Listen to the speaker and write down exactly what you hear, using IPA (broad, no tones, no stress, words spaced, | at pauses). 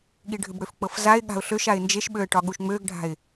ɠiɖʱʏbɽøfk͡pɤf zaɪ̯ɠa̤ʊ̯ ɬøʃ aɪ̯nd͡ʒeʃɓøə̯ ʈɒɠuʃŋ͡møɡɖʱa̤ɪ̯